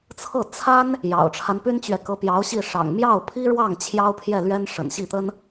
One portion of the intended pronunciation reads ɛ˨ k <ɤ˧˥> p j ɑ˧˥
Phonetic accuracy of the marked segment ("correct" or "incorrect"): correct